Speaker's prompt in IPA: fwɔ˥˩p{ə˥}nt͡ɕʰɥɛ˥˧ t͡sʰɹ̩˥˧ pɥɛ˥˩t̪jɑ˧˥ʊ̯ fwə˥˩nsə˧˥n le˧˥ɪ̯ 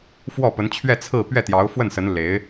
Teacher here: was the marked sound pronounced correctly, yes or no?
no